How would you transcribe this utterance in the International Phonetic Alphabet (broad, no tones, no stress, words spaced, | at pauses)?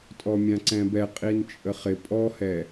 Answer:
tʼɔmʲãǀɛ̃bɛ qʼint͡ʃʼəχɪ pʼɔhɛ